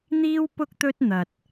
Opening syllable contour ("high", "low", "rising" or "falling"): high